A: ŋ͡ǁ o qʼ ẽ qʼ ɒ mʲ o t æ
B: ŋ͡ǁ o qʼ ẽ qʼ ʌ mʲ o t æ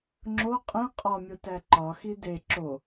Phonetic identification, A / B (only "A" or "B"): A